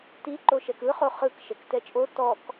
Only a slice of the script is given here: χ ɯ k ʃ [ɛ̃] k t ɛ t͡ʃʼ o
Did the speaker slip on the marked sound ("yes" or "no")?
yes